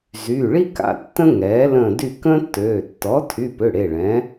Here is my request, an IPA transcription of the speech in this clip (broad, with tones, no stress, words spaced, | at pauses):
zy˩˧˩ɭi˥ka̰˩˧˩ tːə̃˥ŋɛː˩˥lə̃ː˦˨ dy˦˨kə̃ː˥tːøː˩˧˩ tːɔ˩˥tʰy˩˧˩pø˩˧˩ ɽe˩˧˩ɭɛ̃˩˥